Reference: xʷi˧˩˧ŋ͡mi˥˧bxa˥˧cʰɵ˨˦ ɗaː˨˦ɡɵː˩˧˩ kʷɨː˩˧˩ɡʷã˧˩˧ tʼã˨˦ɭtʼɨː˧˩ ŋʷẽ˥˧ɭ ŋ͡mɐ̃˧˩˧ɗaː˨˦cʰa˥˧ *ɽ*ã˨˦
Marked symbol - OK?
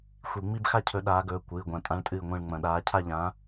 no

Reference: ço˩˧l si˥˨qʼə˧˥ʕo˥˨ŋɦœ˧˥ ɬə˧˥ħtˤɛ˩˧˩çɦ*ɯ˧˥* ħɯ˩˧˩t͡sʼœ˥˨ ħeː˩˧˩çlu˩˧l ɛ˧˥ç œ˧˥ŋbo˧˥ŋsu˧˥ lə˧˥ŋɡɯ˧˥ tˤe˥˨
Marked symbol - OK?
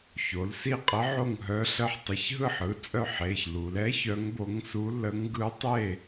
no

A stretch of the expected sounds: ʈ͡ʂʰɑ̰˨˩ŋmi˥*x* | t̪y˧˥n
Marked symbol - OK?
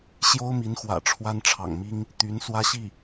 no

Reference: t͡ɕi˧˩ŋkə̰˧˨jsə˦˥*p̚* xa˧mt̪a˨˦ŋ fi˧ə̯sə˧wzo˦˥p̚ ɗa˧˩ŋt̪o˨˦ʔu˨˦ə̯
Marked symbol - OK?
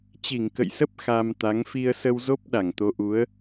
yes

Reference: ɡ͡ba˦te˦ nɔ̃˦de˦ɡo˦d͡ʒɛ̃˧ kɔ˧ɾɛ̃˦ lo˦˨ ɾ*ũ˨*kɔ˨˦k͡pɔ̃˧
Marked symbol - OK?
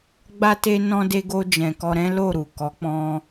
no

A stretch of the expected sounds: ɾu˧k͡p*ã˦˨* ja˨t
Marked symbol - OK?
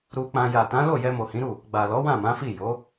no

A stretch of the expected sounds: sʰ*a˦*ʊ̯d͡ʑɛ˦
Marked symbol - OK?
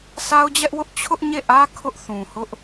yes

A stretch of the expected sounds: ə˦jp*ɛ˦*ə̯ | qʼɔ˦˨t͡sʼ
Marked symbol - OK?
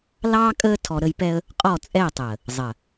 yes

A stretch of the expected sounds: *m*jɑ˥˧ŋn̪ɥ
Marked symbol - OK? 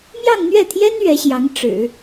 yes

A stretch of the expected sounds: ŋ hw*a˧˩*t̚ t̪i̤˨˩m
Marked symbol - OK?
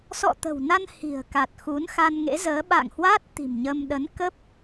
no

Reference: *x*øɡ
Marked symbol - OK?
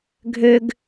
no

